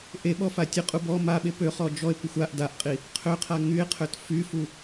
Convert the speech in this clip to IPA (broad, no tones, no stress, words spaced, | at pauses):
ʔeɓɔ fatʲəqʼu bɔ maɓe pøχɔ d͡ʒɔe̯kʷəxʷ aʔ daʔqʼi | qʰøqʰa ŋye̯qʰøt fyfu